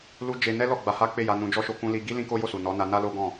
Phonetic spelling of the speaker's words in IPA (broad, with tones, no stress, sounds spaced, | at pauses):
l u˦ d͡ʒ e˧ n ɛ˦ l ɔ˦˨ ɡ͡b a˧ h a˦ k͡p e˦˨ j a˧ n ũ˧ d͡ʒ ɔ˦ ʃ o˧ k ũ˧ l i˧ ɡ i˦ l ĩ˦ k o˦ j o˦˨ s u˨ n ɔ˨˦ n a˧ n a˦ l o˦ ɡ ɔ̃˦˨